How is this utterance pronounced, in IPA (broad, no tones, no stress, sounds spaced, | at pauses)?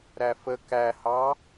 ɾ æ f ə k æ h ɑ